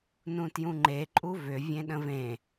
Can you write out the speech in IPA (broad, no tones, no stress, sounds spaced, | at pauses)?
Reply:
n ũ t j ũ ŋ͡ǃ e ǃʼ u v ʏ vʲ ẽ ɗ ə̃ v ẽ